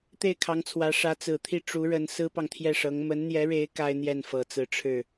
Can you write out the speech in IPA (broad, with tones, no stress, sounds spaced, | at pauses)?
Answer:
t̪ e˥˩ ɪ̯ kʰ ɑ˧˥ ŋ t͡sʰ w ä˧˥ ʂ ä˧˥ t͡s ɹ̩˨˩ t̪ʰ i˥˩ ʈ͡ʂ u˧˥ ɻ ə˧˥ n s ɹ̩˥ p ɑ˨ ŋ t̪ʰ j ɛ˥˩ ʂ ɤ˧˥ ŋ m ə˧˥ n n̪ j ɛ˧˥ ɻ e˧˥ ɪ̯ k a˥ ɪ̯ n̪ j ɛ˥˩ n f ɤ˨˩ t͡s ɹ̩˧˥ ʈ͡ʂʰ ɻ̩˥˩